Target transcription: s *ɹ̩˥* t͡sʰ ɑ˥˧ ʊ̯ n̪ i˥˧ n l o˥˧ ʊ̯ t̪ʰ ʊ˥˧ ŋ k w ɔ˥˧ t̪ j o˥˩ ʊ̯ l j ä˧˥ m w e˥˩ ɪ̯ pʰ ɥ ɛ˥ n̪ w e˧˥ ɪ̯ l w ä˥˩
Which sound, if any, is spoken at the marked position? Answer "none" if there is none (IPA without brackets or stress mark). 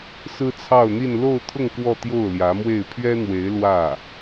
ɹ̩˥